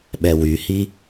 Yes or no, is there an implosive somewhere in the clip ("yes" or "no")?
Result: yes